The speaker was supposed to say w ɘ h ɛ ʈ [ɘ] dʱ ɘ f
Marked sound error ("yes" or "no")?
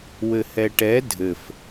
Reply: yes